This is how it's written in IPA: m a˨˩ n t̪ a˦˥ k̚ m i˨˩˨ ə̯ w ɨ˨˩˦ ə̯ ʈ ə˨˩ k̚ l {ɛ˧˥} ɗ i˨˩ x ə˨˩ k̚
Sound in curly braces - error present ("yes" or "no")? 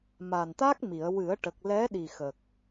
no